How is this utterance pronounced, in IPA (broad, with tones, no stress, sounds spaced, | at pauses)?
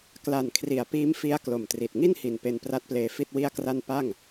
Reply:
k l a˨˩ n kʰ r i˨˩ a̯ p iː˦˥ m f i˦˥ a̯ k l o˨˩ m t r i˨˩ t̚ ŋ i˥˩ n h i˨˩ n p e˧ n p r a˦˥ t̚ p l eː˧ f i˥˩ t̚ w i˥˩ a̯ k r a˥˩ n p a˥˩ ŋ